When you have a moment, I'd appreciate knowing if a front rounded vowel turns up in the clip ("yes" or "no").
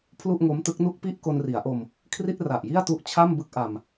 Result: no